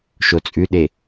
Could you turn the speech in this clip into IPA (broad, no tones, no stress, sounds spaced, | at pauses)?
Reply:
ʃ o t͡sʼ ʉ ɗ e